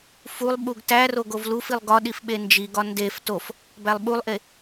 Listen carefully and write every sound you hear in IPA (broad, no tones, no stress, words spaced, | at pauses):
fulˠ ɓuɡtæroɡ ovlufilˠ ɡɒɗif ɓend͡ʒiɡɒ ndef tof | bælˠɓulˠʔe